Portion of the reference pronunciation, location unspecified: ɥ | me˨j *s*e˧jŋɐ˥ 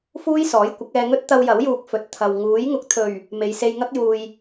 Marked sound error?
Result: no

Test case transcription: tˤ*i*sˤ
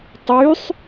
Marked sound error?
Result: yes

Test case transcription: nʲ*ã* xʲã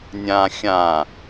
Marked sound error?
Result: no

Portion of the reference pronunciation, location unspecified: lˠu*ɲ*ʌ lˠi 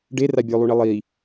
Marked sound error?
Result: yes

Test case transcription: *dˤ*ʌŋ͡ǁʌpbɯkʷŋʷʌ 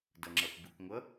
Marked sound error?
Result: yes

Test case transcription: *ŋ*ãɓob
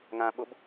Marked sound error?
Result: no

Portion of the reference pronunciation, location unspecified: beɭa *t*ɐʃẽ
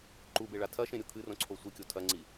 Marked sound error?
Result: yes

